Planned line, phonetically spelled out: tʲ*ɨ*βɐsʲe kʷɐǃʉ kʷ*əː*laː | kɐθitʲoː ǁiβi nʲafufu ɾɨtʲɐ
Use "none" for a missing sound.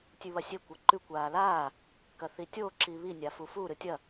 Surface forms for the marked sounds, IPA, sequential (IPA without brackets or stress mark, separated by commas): ʉ, aː